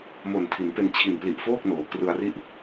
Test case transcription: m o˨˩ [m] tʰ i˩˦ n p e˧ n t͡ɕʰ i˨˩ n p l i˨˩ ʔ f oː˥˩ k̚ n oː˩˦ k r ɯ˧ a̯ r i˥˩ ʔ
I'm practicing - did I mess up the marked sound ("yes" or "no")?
yes